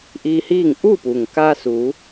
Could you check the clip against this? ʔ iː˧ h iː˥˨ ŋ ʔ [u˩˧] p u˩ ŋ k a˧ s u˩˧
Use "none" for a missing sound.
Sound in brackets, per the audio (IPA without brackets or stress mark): u˥˨